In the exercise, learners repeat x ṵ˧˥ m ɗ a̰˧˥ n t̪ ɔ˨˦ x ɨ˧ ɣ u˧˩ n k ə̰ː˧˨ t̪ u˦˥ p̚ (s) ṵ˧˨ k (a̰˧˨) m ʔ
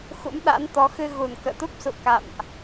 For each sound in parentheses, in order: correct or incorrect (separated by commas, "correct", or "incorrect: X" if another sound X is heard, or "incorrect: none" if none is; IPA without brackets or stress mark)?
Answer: correct, correct